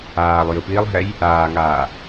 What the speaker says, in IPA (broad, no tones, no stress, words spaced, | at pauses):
aːlˠ jɯpiːlˠɦɛj | aːŋaː